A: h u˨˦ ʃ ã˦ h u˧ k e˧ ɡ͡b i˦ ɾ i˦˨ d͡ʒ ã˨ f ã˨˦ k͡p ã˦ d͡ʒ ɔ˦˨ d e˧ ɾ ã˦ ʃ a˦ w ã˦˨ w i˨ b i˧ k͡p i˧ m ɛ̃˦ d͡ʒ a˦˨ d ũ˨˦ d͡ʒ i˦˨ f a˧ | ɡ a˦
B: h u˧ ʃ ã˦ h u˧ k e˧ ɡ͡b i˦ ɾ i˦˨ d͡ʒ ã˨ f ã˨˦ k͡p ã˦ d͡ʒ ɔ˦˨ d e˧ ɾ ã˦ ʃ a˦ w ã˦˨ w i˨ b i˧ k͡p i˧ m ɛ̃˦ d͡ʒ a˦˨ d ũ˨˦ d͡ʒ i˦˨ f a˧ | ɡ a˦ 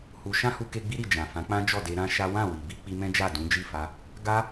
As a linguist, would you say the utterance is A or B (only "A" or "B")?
B